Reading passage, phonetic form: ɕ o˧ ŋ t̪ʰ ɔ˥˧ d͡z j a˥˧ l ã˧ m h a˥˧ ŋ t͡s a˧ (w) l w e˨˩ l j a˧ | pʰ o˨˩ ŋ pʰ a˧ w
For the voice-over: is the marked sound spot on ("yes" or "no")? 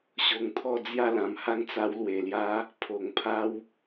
yes